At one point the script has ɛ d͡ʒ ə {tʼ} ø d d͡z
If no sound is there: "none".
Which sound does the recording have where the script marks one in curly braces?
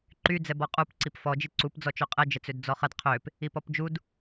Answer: t͡s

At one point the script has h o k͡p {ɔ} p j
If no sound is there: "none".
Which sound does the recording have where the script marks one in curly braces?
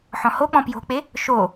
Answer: ɔ̃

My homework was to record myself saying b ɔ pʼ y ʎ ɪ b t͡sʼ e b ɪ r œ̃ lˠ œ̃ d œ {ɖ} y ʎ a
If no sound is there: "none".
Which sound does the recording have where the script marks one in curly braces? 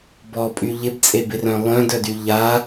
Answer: d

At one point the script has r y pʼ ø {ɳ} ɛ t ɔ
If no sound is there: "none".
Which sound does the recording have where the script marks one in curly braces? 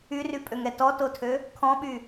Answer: ŋ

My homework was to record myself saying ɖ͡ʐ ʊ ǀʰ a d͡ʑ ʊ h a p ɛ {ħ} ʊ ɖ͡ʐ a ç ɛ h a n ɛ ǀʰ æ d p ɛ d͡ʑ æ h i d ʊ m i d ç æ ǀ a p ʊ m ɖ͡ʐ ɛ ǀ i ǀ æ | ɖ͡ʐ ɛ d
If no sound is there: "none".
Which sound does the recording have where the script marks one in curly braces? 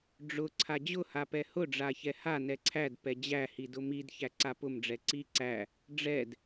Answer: h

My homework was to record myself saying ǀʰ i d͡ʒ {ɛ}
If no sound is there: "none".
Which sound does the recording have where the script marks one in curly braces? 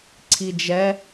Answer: ɛ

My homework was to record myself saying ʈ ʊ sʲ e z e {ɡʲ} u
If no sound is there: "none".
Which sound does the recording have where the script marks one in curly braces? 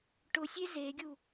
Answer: ɡʲ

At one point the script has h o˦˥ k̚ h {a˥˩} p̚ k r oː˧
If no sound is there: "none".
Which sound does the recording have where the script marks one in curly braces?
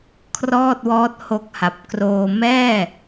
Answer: a˨˩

